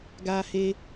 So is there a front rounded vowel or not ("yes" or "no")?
no